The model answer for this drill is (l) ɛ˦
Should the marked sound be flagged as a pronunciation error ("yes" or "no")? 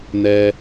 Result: yes